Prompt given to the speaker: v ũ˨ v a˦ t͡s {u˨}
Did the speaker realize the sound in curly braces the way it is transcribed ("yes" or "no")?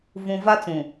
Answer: no